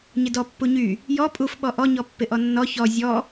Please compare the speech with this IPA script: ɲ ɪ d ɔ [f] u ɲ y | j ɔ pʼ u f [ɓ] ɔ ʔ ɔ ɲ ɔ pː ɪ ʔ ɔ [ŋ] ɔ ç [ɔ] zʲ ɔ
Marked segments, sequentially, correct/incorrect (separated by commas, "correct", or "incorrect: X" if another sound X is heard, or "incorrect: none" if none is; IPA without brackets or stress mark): incorrect: pː, correct, incorrect: nː, correct